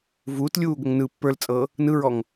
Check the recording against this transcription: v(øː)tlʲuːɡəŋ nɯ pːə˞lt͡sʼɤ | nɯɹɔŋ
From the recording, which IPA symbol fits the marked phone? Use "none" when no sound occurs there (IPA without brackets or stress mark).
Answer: uː